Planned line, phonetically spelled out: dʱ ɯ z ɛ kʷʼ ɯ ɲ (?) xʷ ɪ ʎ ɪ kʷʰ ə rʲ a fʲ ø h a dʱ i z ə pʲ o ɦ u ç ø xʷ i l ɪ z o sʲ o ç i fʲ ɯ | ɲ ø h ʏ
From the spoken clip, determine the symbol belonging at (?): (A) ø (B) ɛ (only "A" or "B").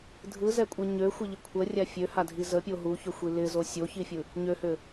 A